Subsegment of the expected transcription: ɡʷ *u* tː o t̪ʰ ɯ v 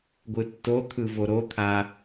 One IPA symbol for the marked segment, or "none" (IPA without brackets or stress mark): ɯ